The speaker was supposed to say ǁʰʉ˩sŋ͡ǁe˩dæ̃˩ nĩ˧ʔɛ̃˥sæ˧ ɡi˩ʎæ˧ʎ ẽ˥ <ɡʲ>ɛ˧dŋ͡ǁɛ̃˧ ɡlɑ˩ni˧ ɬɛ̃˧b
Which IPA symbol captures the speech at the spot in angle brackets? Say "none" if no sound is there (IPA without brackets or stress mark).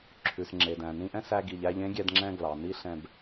ɡʲ